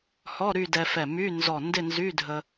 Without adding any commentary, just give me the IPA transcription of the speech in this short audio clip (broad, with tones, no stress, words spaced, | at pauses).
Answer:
hɔ˧˥˧ ɾy˥˧dɛ˧fɛ˧˩ my˧˥˧nzɔ˧˩ ndɪ˥˧nzy˧˥˧dʱə˧